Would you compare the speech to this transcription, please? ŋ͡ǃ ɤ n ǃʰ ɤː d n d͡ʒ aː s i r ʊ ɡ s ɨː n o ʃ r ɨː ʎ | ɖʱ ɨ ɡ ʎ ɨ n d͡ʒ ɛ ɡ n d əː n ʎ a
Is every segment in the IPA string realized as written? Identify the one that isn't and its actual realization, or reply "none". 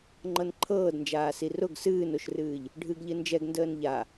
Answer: none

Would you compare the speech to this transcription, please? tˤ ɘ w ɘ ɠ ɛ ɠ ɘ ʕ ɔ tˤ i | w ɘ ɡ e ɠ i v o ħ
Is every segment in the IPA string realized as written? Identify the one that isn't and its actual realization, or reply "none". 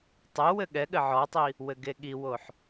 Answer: v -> w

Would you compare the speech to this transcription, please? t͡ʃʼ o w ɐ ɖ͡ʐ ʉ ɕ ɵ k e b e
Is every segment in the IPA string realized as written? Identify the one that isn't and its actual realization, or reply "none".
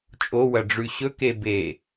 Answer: none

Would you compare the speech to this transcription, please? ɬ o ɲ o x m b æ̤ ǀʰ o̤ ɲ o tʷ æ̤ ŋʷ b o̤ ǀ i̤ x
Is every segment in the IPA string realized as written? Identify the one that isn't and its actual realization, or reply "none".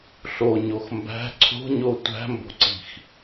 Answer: ŋʷ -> m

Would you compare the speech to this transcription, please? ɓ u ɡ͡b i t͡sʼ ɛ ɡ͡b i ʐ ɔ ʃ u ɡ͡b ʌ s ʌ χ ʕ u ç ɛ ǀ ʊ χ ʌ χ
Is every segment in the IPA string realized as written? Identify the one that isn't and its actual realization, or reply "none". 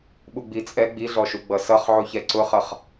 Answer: ʐ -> ɮ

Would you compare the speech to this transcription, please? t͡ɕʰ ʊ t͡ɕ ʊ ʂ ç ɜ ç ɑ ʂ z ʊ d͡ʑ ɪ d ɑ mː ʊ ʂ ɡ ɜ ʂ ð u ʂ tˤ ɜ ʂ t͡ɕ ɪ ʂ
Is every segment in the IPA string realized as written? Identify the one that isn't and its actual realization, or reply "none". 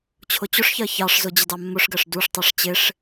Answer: ð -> d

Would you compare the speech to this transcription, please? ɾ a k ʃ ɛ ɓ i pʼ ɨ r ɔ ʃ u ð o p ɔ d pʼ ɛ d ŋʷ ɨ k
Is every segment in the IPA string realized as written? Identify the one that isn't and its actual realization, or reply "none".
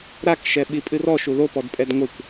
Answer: none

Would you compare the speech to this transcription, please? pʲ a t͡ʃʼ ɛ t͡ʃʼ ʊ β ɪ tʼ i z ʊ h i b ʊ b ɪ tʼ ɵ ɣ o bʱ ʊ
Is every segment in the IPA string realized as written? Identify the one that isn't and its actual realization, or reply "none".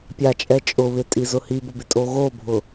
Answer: ɵ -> o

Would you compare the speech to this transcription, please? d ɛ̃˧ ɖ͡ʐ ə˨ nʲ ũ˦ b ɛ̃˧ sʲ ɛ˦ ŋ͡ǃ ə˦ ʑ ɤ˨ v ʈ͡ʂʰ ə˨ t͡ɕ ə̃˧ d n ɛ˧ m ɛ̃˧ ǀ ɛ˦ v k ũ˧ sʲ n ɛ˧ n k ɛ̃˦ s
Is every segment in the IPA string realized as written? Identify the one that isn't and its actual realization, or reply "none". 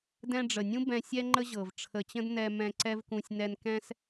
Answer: none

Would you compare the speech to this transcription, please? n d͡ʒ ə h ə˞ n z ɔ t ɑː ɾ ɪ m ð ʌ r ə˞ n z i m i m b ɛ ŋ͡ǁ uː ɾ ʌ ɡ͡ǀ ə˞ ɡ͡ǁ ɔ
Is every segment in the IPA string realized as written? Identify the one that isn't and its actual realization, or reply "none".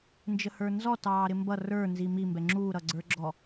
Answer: ð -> b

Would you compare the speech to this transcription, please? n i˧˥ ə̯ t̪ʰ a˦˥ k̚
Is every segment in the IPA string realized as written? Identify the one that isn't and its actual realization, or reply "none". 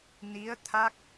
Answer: none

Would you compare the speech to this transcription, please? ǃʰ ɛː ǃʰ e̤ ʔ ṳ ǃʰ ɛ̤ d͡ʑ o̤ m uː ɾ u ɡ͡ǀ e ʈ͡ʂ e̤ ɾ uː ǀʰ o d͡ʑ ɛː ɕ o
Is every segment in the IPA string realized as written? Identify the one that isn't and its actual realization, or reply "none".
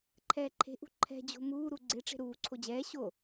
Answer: none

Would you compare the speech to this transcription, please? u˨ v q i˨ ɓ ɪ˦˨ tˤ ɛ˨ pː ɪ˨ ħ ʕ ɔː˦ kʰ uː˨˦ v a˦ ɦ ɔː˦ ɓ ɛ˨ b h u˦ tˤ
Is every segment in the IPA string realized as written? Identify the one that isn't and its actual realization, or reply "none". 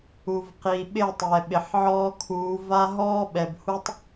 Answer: pː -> ɓ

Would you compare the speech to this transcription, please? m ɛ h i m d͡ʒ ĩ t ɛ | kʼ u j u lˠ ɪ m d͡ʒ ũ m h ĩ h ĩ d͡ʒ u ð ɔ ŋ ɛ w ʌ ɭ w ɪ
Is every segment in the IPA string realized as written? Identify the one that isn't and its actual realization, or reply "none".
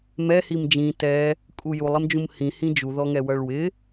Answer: none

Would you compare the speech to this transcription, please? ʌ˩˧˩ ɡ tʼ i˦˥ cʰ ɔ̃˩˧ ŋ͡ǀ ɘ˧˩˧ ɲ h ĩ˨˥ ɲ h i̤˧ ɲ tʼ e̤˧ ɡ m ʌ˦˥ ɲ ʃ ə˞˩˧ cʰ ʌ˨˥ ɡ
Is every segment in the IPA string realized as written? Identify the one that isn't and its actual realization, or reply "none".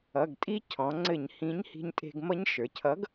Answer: none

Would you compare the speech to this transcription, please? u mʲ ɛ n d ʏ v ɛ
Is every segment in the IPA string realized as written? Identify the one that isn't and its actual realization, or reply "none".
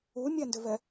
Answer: none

